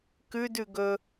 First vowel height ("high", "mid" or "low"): high